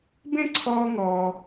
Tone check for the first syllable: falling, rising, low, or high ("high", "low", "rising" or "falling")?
high